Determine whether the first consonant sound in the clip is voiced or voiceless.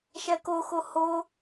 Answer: voiceless